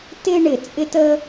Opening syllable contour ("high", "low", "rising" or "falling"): high